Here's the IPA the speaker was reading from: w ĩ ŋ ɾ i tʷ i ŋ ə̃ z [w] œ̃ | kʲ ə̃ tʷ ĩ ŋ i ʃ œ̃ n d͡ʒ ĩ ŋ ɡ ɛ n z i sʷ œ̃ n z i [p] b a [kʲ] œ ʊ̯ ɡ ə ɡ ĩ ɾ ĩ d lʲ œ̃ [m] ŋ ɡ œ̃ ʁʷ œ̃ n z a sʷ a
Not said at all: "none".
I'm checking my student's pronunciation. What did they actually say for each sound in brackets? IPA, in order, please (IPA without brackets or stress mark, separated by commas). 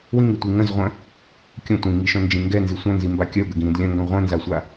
ʁʷ, m, kʲ, none